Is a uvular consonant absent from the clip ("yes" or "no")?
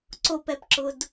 yes